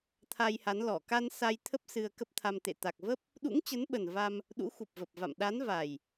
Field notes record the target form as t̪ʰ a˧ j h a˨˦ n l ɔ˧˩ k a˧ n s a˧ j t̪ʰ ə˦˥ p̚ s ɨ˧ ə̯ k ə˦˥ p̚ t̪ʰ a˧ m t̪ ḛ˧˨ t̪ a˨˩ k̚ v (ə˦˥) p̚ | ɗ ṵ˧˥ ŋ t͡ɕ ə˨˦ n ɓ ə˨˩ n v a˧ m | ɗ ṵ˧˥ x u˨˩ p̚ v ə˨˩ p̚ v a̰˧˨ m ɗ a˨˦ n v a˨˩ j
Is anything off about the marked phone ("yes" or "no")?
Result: no